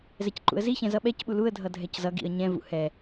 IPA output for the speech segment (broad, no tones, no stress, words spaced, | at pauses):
zɛcǃṵə̯ziçɛ̃ zʌɓɛcɓu luə̯dʱʌ dʱɛczʌɡḭə̯ ɲɛ̃vṵ hɛ